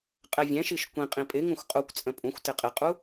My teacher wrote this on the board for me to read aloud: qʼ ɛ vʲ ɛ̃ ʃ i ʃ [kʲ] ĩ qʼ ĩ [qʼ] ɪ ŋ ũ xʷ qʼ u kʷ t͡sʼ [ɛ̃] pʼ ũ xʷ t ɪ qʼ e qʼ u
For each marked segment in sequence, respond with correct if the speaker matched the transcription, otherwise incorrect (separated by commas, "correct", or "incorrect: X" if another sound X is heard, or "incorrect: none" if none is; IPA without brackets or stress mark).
incorrect: kʷ, incorrect: pʼ, incorrect: ə̃